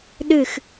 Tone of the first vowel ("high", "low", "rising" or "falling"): falling